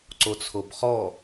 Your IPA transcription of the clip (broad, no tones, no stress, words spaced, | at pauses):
ǀot͡sʰobχɔ